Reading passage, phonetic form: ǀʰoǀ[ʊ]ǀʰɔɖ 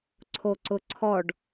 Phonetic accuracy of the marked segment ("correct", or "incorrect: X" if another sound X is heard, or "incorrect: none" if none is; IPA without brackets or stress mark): correct